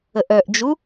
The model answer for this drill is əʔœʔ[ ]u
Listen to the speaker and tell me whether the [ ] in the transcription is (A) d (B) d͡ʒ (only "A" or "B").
B